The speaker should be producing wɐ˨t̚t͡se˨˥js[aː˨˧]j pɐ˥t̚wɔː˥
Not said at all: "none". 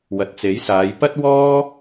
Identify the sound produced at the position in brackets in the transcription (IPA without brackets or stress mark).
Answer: aː˨˧